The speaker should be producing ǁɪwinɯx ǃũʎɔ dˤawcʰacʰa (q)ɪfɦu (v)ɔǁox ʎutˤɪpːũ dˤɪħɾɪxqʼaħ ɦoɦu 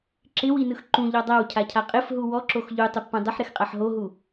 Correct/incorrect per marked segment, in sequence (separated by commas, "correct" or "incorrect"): incorrect, incorrect